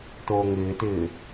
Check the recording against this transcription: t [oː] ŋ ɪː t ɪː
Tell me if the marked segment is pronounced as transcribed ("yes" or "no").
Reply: yes